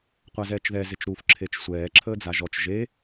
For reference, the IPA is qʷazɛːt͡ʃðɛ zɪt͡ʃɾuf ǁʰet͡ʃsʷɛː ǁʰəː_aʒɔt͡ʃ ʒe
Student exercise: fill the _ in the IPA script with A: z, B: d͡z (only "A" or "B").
B